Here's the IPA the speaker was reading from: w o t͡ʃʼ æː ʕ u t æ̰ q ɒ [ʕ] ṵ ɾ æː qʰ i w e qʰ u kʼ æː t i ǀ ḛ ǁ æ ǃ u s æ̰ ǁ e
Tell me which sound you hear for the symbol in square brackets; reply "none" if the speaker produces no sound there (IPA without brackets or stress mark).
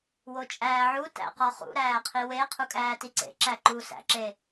χ